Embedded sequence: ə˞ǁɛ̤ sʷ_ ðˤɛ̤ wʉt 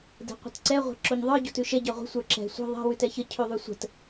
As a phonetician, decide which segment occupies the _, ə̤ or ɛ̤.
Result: ə̤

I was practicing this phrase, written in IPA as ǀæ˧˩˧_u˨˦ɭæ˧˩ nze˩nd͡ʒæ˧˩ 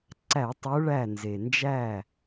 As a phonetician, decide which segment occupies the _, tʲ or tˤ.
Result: tˤ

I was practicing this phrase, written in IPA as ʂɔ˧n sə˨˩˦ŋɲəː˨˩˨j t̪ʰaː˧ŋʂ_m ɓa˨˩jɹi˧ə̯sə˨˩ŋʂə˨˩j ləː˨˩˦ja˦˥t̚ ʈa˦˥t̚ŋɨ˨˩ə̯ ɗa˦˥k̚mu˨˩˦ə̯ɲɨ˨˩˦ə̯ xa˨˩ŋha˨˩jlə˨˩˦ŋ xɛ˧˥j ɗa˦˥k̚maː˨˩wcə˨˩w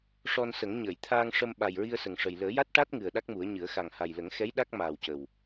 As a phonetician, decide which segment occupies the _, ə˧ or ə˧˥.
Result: ə˧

